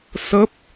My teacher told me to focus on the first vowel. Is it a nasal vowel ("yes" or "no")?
no